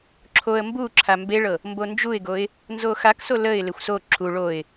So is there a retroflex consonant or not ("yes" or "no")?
yes